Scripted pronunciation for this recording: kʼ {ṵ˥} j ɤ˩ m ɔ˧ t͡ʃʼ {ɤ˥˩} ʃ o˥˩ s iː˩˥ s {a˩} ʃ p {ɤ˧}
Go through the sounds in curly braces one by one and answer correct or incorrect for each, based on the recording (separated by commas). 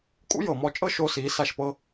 correct, incorrect, incorrect, incorrect